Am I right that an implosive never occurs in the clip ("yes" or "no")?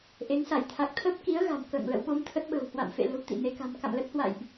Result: no